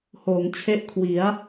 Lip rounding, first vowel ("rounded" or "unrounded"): rounded